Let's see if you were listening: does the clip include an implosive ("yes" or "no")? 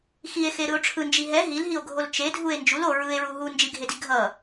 no